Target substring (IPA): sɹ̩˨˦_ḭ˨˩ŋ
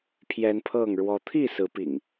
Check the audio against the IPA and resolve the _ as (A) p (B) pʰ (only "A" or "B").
A